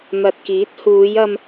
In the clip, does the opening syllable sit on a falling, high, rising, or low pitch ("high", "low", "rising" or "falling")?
low